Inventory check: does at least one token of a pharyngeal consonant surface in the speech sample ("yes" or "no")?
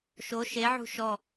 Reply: yes